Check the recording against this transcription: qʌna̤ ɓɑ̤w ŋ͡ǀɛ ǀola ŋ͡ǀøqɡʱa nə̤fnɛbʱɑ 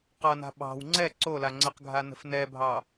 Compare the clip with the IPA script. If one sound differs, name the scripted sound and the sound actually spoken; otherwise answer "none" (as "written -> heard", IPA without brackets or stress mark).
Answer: ø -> ə